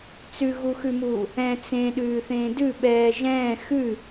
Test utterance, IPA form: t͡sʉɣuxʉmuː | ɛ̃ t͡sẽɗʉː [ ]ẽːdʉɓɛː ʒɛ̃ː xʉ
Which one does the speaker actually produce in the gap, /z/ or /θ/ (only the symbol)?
θ